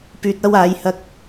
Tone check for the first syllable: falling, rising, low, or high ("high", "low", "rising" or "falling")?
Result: low